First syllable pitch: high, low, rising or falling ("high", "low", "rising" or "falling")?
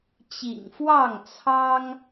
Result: low